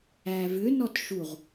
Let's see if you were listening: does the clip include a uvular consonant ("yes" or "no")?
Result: yes